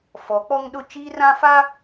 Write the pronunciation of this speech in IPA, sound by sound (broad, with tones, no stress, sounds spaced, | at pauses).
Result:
f ɔ˨˦ k͡p ɔ˦ ŋ ɗ ʊ˦ t͡ʃ iː˦ r ã˦ f a˦